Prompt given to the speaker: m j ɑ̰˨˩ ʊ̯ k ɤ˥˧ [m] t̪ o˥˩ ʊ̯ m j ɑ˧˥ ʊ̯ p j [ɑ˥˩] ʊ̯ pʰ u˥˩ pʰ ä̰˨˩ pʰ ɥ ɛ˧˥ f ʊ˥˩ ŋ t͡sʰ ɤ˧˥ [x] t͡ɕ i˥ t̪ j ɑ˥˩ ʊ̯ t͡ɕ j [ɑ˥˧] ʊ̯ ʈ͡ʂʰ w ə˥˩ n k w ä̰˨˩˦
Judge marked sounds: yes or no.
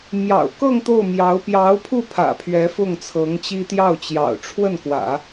no, no, no, no

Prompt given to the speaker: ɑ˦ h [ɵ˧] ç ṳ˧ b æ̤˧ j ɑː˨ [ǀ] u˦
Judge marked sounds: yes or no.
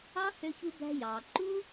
no, no

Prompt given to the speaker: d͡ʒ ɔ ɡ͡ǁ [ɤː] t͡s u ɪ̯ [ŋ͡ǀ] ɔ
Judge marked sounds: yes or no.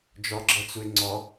no, yes

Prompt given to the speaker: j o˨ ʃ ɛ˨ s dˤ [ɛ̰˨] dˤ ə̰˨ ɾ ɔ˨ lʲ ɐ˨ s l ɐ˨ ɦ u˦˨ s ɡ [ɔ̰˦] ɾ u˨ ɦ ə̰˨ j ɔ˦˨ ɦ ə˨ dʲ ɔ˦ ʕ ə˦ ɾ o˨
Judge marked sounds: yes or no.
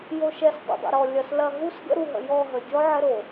no, no

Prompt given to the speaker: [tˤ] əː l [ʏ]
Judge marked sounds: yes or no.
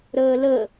no, no

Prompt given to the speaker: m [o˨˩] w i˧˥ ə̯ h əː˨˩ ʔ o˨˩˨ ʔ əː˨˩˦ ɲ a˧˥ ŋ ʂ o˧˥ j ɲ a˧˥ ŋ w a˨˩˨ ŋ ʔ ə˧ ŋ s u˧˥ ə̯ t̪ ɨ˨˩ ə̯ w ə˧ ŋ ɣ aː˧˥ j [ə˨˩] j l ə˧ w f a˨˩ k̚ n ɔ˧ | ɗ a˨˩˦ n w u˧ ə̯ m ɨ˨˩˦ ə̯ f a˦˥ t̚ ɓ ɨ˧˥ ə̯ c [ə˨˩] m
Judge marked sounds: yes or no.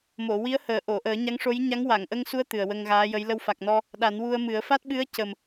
no, no, yes

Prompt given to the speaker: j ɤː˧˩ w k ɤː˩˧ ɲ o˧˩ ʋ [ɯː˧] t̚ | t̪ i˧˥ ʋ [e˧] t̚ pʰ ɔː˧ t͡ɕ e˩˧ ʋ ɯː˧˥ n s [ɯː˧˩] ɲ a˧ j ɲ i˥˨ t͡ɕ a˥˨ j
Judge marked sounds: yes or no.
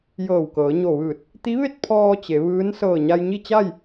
no, no, no

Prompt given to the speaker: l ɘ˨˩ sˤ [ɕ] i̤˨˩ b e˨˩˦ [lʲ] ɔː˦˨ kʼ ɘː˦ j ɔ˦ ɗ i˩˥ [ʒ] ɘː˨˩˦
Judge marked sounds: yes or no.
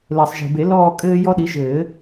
no, no, yes

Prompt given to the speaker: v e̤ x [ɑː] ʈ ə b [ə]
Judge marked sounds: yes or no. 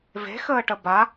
no, no

